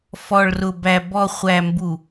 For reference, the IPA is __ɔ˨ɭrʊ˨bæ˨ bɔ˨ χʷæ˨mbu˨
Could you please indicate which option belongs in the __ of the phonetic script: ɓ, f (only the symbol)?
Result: f